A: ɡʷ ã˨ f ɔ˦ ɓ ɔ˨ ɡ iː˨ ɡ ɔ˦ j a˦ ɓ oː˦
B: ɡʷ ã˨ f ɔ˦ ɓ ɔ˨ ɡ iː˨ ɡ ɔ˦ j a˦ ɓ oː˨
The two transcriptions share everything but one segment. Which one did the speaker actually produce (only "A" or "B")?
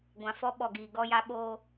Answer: A